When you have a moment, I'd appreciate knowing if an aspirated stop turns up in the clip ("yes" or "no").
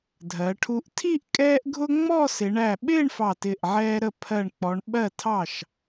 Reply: yes